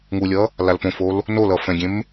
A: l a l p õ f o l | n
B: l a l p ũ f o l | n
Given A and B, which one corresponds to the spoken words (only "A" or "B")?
A